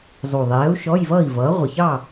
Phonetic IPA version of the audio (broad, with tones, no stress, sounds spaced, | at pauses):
zˤ u˨˩ ðˤ ɛː˨˥ u̯ ʃ ɔ˧˥˧ j v ʌː˥˨ i̯ v ʌː˨˥ ʁʷ ə˨˩ ç ɑ˥˨